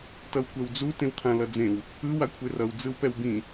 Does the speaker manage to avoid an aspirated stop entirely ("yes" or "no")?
no